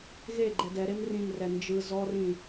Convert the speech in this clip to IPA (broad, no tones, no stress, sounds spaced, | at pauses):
ɣ e ɡ͡ǃ ɛ d ɛ ɾ e m r ĩ m r ɛ n d͡ʒ ɯ z ɔ r ĩ